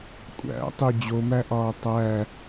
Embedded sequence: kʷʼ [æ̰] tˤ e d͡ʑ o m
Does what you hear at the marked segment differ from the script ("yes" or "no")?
no